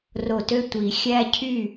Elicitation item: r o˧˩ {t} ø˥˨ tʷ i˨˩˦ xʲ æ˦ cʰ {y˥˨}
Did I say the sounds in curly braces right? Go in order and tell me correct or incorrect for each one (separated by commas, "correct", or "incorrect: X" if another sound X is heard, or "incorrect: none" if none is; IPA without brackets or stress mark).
correct, correct